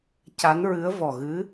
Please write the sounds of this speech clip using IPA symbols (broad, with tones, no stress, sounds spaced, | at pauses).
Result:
c a˧˥ n ɹ ɨ˧˥ ə̯ v ɔ˨˩ ɣ ɨ˧˥